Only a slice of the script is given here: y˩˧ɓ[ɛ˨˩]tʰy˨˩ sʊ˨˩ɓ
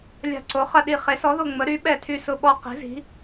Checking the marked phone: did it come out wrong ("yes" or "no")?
no